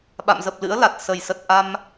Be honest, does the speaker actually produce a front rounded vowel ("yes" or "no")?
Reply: no